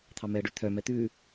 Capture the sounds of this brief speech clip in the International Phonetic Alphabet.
t̪ʰ ɑ m ɛ ə̯ ɖ ʉ t̪ʰ œ m ɛ t̪ ʉ

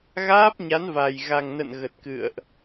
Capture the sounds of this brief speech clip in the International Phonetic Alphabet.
ɣ aː˦˥ p̚ ɲ a˨˦ n v a˨˩ j ɣ a˨˩ ŋ n ə̰˧˨ n ɣ ə˨˩ t̚ k ɨ̰˧˨ ə̯ ʔ

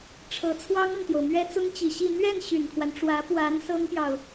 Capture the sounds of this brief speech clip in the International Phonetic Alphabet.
ʈ͡ʂʰ ɤ˧˥ t͡sʰ w ɑ˥ ŋ ɤ˨ ŋ t̪ j o˩ ʊ̯ m ɥ ɛ˥ t͡s ʊ˥ ŋ t͡ɕ i˨˩ ɕ i˥˧ n̪ ɥ ɛ˥˩ n ɕ y˨˩ n kʰ w a˦ n ʈ͡ʂ w ä˧˥ p w a˧˥ n s ɤ˥ ŋ p j ɑ˨ ʊ̯

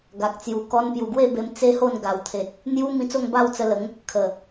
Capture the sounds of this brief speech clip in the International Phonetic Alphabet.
ɡ a˨ k̚ t͡s j u˨˩ k ɔ˧ n p j u˨˩ ɡ w e˥˧ b e˧ m t͡s e˦ h o˥˧ n ɡ a˨˩ w t̪ʰ e˨ t̚ | n̪ j u˦ m ĩ˧ t͡s o˥˧ ŋ b a˥˧ w t͡s ə˧ l ə˨˦ ŋ | kʰ ə˨˩

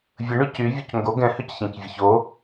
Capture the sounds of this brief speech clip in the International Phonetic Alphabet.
vʲ ə ɳ y c y vʲ o c ŋ ɡ o ɡ ɛ̃ h ø c ç ɛ̃ c vʲ ə ç o

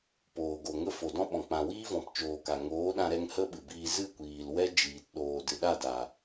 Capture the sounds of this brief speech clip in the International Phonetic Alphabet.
p oː˨ ɡ o˨ ŋ ə˦ f o˨ d ɔ̃˦ ɓ ɔ̃˨ k͡p ã˨ w iː˦ v ɔ̃˨ p t͡ʃ oː˨ k a˨ ŋ oː˨˦ ɗ ã˧ ɾ ɛ˧ ŋ h ə˦ ɓ ɨ˨ b iː˧ z ɨ˦˨ kʷ iː˨ l w ɛ˦ d͡ʒ iː˨ t ɗ oː˨ d ɨ˨ ɗ a˦˨ d a˨

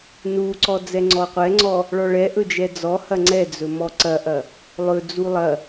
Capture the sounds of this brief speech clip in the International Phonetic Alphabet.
n u ǀ ɔ d͡z ɛ ŋ͡ǀ ɔ qʷ ɛ ŋ͡ǀ ɔ | ɭ ɔ ɭ ɛ ʔ ɵ d͡ʒ ɛ d͡z ɔ h ɐ ŋ͡ǀ ɛ d͡z ɵ m ɔ ǀ ɐ ʔ ɐ | lˠ ɵ d͡z u lˠ ɐ

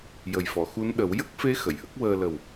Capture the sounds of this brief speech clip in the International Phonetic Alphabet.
j ə˨˩ j f ɔ˨˩˨ x u˧˥ n ɗ ə˨˩˦ w j ə˦˥ k̚ f e˧˥ x ə˨˩˨ j ʔ ə˦˥ k̚ w əː˧ l ə˨˩ w

